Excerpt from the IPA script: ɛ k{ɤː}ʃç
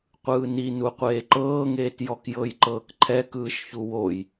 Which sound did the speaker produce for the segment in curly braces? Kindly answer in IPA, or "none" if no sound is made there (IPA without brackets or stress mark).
ɯː